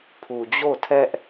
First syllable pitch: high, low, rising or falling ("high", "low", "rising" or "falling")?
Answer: low